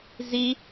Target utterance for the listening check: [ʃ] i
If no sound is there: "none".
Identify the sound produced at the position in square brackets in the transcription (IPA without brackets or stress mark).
z